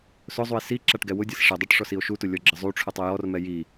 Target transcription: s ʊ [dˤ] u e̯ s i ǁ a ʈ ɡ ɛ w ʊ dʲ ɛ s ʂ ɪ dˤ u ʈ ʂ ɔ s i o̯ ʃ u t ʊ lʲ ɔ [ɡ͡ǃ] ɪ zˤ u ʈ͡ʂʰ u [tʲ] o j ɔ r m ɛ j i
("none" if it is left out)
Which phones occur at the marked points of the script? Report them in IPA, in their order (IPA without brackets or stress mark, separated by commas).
zˤ, ɡ͡ǁ, tˤ